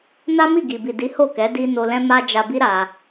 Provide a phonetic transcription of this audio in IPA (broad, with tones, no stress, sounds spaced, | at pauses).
n a˦ m i˦˨ ɡ i˨ b i˨ d i˨˦ h o˦˨ k ɛ˨˦ d i˧ n o˧ l ɛ̃˦ m a˧ d͡ʒ a˧ b i˦ ɾ a˧